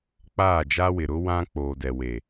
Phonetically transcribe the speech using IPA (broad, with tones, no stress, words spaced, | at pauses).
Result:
k͡paː˦˨d͡ʒa˦wɪ˨ ɾʊ˦ wã˦k͡poː˨dɛ˨we˨